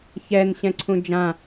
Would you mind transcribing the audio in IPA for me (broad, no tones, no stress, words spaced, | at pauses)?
çɛn ɕɛ̃ǀʰũd͡ʒã